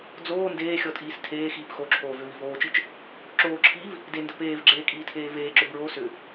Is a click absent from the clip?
no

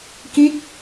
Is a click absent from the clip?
yes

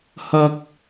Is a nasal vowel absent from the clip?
yes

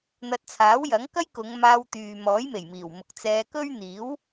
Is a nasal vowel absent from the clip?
yes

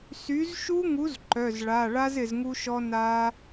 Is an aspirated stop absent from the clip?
yes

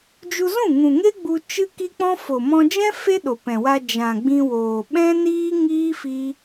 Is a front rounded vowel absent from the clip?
yes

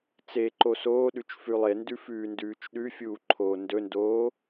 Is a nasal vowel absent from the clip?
yes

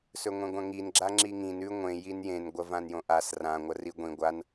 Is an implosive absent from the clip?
yes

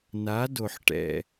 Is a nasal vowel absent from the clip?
yes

